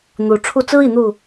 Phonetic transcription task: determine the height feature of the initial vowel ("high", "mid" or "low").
high